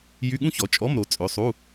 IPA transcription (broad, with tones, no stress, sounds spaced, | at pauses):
j y˧˥˧ ɠ ũ˥ ç ɔ˩˧ t͡ʃʼ ɔ˧˥˧ m ɾ o˩˧ t͡sʼ ø˩˧˩ sˤ u˧˥˧